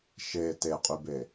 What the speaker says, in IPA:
ʃe teqʼybe

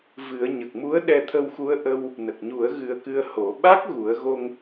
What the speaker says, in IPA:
vɨ˨˩˦ə̯ ɲə˨˩k̚mu˧˥ə̯ ɗɛ˧t̪ʰə˧wxu˧˥ə̯ ʔə˧w | nə˨˩k̚ɲu˨˩˦ə̯ ɣɨ˧ə̯kɨ˧ə̯ho˨˩˦ ɓa˦˥k̚ ɣu˨˩˦ə̯ɣo˧ŋ

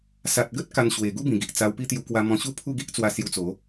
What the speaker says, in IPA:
sa˨t̚ɡə˦t̚ ka˧nɕwe˨˩ ɡu˦bĩ˨˩ ɡi˨ʔ t͡sa˧wpi˦ t̪ju˧kwa˧mɔ̃˧ɕu˥˧ pʰu˥˧ɡi˦ʔt͡swa˧ sju˧t͡so˨˦

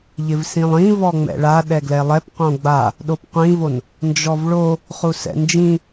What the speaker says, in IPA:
ʎɪvsĩlˠĩ vɔŋ͡mɛ̰ɭa ɗɛɡlɛlˠɛp qõɡ͡ba | ɗopqʷĩvon | nd͡ʒɔvɭo | χusɛ̰nd͡ʒĩ

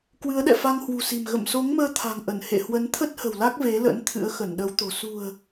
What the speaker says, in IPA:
kwɨ˨˦ə̯ɗɛ̰˧˨fa˧ŋ hwṳ˨˩si̤˨˩m ɣə̰˧˨mso˨˦ŋməː˧ t̪ʰa̤˨˩ŋʔə˧˩nhḛ˧˨ hwə˨˦nt̪ʰə˦˥t̚ hə̤˨˩wla˦˥k̚ ve˨˦lə̰˧˥n t̪ʰɨ̰˧˥ə̯xə˧˩nɗə˨˦wt̪o̤˨˩ sṳ˨˩ə̯

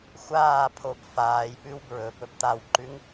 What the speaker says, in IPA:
xʷaːpʰob faːjpʉw bɹɵ pɵbt̪awǃʉŋ

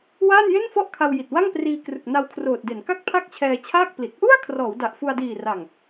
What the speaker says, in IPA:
waː˥˩nje˥˩nfɔ˥˩ʔkʰa˧w ji˨˩t̚wa˥˩ŋpriː˧krɯ˨˩k̚ na˧wkʰroː˨˩t̚de˩˦n ka˥˩k̚pʰa˥˩k̚ t͡ɕʰɛː˧t͡ɕʰaː˥˩k̚pli˨˩t̚ ʔu˥˩a̯ kʰrɔː˩˦wda˨˩ʔfu˧a̯diː˨˩ ra˨˩ŋ

